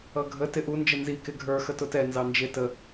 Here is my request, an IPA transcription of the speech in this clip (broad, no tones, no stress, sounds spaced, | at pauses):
ʌ ɡʱ ə t ɪ ʔ u n d͡ʒ ə n z i k ɪ ɡʱ ə˞ x ə t ʊ t ɛ n z ɑ n d͡ʒ ɪ t ə